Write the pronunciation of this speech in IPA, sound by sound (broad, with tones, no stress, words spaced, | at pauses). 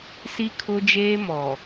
si˦kʰʊ˦d͡ʒeː˦ mɔ˨